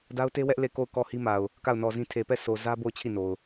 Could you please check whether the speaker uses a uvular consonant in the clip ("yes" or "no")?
no